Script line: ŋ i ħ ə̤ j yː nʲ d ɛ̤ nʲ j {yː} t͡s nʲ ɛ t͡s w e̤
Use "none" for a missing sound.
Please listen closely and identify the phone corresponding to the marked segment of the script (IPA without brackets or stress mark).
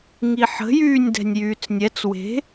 yː